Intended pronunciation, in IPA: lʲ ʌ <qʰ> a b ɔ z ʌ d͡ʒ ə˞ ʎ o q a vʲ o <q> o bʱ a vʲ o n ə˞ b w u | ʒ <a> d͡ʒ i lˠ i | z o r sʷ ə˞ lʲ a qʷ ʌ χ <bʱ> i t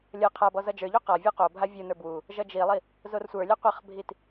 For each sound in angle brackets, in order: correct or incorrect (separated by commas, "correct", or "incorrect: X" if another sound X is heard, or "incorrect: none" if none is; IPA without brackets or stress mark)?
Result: correct, correct, incorrect: ʌ, correct